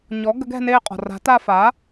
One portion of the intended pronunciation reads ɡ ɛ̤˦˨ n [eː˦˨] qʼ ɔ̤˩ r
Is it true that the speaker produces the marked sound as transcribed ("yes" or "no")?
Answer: yes